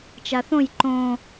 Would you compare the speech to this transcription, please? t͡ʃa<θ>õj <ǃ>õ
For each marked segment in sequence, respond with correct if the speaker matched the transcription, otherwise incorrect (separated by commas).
correct, correct